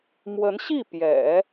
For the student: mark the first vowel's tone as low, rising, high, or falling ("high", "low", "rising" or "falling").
rising